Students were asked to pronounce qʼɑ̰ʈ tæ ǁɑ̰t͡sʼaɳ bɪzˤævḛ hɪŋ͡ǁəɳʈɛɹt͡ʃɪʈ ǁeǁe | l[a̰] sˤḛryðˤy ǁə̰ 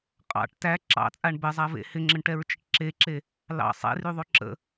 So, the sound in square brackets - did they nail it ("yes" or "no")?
no